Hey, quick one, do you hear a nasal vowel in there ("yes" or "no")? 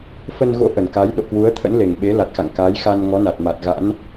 no